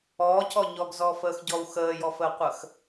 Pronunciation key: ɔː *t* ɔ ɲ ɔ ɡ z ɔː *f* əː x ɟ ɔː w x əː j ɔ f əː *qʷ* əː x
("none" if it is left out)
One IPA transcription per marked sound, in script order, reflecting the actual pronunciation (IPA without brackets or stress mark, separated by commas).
c, f, qʷ